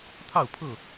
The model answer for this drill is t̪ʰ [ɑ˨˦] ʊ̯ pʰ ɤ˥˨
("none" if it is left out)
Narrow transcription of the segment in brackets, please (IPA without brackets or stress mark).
ɑ˥˨